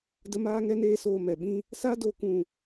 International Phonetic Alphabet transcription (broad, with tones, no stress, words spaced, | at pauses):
də˦ maː˦ŋɛ˦ neː˦soː˧ mɛ˨ɓĩ˦ | sa˦do˧ kũ˦˨